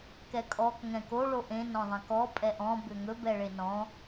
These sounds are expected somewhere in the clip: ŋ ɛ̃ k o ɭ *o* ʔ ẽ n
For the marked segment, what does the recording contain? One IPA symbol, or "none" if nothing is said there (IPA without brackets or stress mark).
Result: o